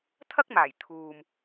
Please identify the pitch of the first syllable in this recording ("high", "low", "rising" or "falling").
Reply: high